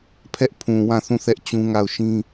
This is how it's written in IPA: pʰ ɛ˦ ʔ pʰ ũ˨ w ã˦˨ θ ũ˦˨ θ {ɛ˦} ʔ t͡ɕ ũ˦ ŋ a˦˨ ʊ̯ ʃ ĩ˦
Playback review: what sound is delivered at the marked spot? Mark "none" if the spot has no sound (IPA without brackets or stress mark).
ɛ˦